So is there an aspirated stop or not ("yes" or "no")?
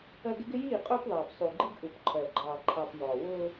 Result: yes